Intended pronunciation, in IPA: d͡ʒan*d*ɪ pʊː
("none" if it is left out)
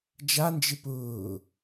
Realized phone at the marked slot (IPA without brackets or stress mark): d͡ʒ